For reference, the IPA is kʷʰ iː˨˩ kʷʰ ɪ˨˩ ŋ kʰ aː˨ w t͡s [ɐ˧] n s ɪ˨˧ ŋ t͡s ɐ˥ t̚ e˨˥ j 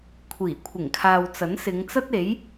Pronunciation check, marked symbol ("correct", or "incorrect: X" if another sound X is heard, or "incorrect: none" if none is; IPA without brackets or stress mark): incorrect: ɐ˨˥